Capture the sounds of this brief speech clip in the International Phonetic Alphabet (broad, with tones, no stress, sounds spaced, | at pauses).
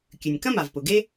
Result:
kʲ ʉ˩ nʲ k ɐ̃˥ m a˩ v p ʊ˩ ɡ e˥